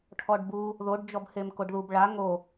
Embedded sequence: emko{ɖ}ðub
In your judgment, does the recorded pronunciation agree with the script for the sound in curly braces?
yes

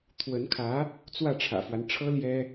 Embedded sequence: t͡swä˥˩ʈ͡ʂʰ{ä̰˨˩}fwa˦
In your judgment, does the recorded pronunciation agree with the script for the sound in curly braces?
yes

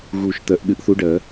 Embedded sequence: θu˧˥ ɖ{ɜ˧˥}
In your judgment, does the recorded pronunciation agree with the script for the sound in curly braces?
no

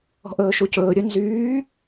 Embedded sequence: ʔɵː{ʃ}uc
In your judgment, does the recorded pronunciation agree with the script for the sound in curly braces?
yes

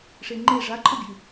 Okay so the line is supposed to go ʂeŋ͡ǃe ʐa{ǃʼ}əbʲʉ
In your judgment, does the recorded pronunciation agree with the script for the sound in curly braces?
yes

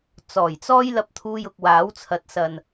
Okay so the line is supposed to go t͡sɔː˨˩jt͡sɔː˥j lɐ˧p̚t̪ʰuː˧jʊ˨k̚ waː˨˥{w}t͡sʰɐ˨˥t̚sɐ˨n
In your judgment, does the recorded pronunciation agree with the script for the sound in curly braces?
yes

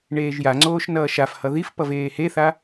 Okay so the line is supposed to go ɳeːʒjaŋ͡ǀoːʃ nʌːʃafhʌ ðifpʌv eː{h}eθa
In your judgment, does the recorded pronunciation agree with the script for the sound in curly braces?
yes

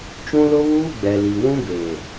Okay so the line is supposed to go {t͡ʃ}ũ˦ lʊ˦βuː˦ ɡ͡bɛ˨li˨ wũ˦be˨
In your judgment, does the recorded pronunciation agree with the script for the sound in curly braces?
yes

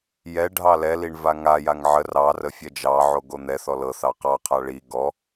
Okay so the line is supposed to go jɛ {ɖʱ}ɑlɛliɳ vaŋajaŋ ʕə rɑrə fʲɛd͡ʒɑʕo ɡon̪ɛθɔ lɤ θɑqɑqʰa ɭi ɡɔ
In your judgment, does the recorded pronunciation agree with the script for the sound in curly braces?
yes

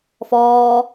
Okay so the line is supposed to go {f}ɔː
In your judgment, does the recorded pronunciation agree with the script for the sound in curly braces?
yes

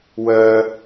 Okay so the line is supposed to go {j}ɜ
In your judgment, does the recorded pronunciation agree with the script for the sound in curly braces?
no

